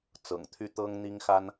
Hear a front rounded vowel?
yes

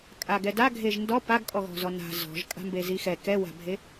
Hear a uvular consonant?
no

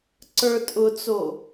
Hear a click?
yes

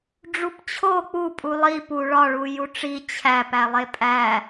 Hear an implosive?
no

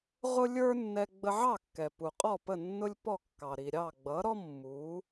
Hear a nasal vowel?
no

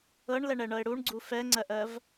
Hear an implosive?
no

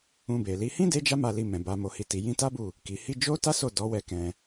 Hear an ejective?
no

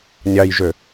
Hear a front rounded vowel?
yes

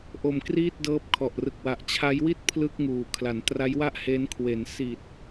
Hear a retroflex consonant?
no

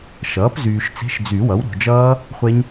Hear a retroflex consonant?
no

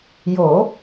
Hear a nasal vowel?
no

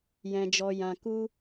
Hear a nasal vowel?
yes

